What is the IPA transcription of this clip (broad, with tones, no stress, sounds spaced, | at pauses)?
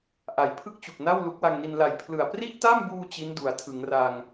ʔ a˩˦ j pʰ ɯ˥˩ k̚ t͡ɕ u˨˩ k̚ n a˥˩ w l u˦˥ k̚ w a˧ ŋ n i˧ n l a˨˩ j pʰ l ɯ˨˩ a̯ p r i˥˩ ʔ t a˥˩ m b uː˧ t͡ɕ i˦˥ n d u˩˦ a̯ tʰ ɯ˩˦ ŋ r a˧ ŋ